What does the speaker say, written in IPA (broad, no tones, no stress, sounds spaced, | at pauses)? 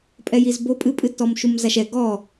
pʼ ɛ j i z b o pʼ ɨ pʼ ɨ tː ɔ m ʃ u m z a ʃ ɛ ɡ ɔ